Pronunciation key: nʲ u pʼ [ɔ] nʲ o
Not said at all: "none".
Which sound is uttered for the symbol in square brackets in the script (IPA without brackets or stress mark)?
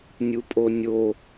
o